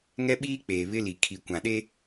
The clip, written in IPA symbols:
ŋ ɛ˦ ɓ iː˦ k͡p eː˨ β ɪ˦ l i˨ kʰ i˨ kʷ ã˨ ɗ e˦

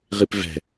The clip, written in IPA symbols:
ʁ i p v ɛ̤

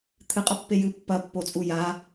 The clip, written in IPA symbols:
t̪ʰ ɨ qʼ ɐ pː e j ɨ pː ɐ pː o t͡sʼ u j a

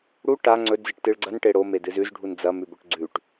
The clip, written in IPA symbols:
ɽ u ʈ a ŋ͡ǀ ɵ d͡z ɨ ʈ t ɨ ɭ ɡ͡ǀ ɐ n ʈ e ɽ o m e d ɨ z ʉ z ɖʱ u n d͡z ɐ m ʉ b ɵ ʈ ɡ͡ǀ ʉ ʈ

